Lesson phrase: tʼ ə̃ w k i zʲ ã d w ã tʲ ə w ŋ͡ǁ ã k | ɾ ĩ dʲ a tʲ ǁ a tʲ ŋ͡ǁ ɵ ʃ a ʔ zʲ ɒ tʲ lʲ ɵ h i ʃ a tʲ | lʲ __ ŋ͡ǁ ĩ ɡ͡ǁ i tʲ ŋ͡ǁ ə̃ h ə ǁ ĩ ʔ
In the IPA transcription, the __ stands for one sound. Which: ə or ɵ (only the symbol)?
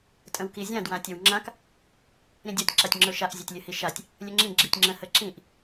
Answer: ɵ